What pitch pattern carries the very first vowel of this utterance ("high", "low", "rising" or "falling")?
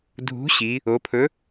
rising